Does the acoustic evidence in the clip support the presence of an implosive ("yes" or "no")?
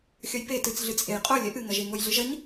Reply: no